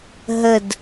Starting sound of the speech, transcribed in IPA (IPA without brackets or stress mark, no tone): ɦ